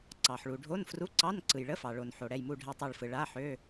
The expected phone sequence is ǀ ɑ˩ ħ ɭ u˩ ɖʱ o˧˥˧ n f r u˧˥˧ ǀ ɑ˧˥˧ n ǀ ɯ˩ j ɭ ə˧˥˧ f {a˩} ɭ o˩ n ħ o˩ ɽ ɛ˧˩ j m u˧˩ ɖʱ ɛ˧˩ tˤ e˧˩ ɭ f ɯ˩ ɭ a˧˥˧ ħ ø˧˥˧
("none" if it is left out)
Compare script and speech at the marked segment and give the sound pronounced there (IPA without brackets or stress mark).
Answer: ɑ˩